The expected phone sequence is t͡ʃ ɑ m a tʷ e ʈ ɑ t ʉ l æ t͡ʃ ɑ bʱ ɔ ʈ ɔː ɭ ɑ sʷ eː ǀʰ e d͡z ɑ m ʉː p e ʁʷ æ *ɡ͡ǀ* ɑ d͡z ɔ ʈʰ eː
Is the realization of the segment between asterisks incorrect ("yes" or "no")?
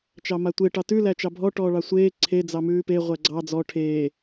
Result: no